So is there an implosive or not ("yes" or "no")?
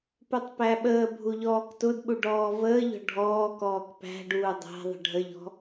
yes